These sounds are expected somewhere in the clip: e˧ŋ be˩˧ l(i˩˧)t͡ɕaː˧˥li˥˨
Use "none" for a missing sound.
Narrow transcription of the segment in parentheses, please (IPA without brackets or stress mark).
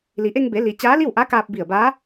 i˩˧